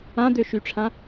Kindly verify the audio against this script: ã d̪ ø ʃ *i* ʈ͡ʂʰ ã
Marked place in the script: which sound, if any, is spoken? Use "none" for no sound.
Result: y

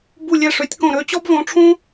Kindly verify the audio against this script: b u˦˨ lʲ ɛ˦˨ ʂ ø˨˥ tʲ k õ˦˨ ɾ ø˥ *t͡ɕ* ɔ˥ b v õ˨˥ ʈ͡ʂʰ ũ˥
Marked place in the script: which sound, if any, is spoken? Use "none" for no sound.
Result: t͡ɕ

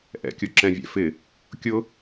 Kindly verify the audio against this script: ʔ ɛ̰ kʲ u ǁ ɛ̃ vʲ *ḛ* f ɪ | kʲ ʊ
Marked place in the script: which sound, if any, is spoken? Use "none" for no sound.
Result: ɛ̰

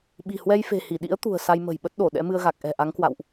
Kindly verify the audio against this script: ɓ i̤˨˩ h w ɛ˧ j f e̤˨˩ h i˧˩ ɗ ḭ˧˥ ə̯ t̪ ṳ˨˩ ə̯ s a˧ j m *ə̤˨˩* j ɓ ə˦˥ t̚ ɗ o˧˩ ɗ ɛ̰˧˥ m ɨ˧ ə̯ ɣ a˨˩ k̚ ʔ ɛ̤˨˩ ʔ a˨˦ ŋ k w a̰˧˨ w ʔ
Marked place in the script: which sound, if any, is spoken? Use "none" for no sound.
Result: ə̤˨˩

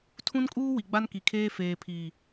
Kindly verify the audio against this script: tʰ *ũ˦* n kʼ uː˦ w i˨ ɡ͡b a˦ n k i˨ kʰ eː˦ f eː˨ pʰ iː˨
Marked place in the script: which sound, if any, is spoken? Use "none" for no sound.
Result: ũ˦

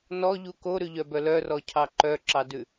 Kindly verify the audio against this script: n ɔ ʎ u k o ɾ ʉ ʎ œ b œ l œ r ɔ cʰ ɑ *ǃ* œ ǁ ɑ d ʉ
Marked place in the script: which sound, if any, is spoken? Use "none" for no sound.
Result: ǃ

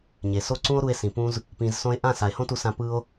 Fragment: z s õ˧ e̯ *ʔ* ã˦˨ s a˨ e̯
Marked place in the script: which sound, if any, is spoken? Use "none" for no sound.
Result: ʔ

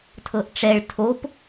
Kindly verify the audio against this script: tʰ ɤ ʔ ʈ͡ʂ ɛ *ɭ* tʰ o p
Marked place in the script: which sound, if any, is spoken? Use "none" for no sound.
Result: ɭ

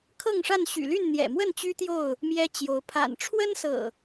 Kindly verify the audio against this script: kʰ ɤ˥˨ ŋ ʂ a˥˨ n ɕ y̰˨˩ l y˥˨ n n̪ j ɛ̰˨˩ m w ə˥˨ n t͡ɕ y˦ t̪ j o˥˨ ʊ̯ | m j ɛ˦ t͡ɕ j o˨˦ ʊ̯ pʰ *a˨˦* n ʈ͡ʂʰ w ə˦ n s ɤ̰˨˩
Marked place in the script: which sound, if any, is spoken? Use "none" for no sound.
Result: a̰˨˩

